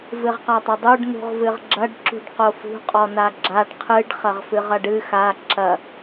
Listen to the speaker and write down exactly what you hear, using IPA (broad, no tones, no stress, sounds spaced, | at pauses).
v ɨ ʁ q a tˤ ɐ dˤ u ɖ n ṳ ʁ v ɨ ʁ ɡ͡ǁ ɐ ɖ ǁ ṳ ɖ q o f ṳ qʼ ɔ n a ɡ͡ǁ a ɖ qʰ ɨ ɖ χ ɐ ʁ f ɨ ʁ ɐ ɖ ɨ x a ǁ ɐ